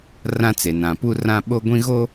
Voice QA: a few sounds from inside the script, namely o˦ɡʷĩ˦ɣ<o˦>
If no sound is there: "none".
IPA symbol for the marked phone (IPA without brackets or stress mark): o˦